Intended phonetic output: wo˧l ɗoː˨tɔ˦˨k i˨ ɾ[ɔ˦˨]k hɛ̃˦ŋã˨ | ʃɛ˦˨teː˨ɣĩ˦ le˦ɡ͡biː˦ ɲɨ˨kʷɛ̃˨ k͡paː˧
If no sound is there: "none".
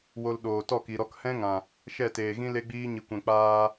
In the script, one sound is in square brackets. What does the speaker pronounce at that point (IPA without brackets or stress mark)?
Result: ɔ˧